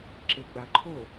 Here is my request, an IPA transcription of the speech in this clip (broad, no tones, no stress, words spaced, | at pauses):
ǁeɡ͡baǃʰo